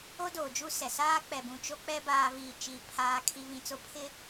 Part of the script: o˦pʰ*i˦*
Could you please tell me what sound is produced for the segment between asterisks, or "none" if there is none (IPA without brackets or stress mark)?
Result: ɪ˦